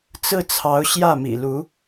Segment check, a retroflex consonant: absent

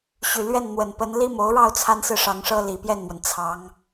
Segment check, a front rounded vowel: present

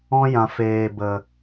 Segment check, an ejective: absent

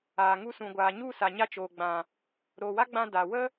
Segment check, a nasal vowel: present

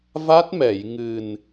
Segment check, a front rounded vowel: absent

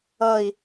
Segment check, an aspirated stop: absent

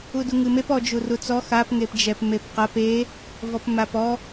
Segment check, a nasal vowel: absent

